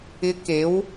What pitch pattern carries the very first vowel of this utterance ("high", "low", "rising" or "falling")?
rising